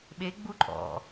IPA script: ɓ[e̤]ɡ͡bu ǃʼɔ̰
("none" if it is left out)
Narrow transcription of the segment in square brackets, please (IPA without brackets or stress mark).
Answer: e